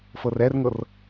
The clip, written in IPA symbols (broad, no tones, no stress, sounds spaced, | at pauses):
f ɤ r ɛ r ŋ ɤ r